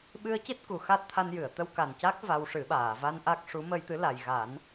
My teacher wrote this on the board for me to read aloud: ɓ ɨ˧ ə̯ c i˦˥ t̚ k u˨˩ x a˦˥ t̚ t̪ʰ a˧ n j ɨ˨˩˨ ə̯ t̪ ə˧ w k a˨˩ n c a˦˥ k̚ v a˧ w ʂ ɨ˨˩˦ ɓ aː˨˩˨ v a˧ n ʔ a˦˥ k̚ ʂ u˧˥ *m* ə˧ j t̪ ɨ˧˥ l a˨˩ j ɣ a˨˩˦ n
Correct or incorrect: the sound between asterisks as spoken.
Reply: correct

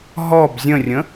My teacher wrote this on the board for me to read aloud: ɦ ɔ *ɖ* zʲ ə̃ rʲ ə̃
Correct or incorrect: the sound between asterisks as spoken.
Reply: incorrect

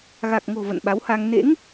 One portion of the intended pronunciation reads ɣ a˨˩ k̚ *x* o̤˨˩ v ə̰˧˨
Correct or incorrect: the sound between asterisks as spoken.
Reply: incorrect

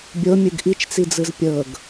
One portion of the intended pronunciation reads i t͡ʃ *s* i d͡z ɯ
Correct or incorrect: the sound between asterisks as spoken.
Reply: incorrect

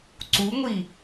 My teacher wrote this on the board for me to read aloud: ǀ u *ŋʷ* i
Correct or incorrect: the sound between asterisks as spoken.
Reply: correct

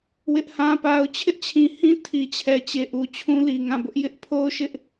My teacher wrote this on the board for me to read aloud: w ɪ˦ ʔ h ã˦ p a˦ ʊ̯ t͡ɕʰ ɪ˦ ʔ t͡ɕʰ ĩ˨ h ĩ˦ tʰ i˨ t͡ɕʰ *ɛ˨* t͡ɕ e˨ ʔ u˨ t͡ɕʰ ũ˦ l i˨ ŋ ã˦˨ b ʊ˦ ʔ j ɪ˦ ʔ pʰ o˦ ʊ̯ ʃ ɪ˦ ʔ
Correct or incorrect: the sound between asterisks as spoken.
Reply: correct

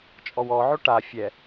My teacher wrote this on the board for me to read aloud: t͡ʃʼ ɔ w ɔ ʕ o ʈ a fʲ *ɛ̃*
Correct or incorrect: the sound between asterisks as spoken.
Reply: incorrect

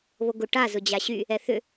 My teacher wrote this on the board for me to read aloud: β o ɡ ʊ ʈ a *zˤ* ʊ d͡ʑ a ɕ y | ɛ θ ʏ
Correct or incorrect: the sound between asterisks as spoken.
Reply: incorrect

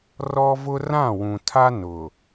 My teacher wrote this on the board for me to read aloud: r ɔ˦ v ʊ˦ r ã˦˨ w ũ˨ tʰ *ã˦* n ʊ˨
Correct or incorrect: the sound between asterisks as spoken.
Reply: incorrect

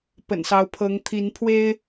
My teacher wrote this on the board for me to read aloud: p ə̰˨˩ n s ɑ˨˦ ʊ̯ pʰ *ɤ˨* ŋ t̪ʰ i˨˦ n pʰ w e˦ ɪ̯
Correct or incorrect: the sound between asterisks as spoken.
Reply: incorrect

